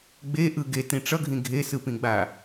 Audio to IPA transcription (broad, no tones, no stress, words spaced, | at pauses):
ɡ͡beʔɯ ɡetĩ ʈ͡ʂʌɡʱĩ ɡʱesɯpĩɡ͡ba